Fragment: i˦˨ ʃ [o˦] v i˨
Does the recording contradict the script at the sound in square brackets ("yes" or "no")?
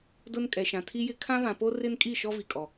yes